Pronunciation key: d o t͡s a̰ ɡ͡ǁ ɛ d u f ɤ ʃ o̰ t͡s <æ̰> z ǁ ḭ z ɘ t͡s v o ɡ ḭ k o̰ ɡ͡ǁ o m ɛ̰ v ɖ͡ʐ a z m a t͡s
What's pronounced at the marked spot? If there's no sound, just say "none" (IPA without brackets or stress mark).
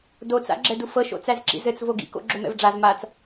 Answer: æ